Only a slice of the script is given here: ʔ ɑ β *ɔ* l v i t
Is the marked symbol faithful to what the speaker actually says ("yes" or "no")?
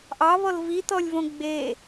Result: yes